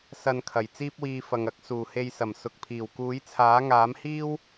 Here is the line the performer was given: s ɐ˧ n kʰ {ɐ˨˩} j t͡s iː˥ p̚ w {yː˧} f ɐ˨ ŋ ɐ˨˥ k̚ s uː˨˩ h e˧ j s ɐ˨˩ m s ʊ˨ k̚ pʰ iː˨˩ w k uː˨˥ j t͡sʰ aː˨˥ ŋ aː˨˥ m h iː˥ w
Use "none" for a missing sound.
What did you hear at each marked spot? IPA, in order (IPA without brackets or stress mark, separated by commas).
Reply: ɐ˨˩, iː˧